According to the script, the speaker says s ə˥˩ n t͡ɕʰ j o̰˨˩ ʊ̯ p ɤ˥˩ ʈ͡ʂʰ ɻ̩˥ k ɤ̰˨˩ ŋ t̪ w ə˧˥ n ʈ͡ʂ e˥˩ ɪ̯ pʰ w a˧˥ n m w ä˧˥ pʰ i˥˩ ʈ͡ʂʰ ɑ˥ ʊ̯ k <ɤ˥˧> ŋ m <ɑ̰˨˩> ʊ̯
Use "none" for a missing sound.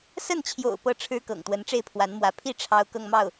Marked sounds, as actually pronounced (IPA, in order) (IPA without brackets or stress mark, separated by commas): ɤ˥˧, ɑ˥˩